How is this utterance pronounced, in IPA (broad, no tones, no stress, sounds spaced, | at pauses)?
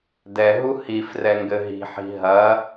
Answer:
d ɛ ɦ u h i f r ɛ ŋ ɡ ɘ ɦ i̤ ħ i̤ ɦ ɐ